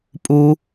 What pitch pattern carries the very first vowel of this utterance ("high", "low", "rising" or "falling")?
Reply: low